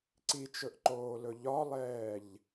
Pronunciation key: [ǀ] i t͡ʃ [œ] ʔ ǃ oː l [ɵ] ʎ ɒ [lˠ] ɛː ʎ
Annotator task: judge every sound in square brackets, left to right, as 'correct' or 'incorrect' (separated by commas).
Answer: correct, incorrect, correct, correct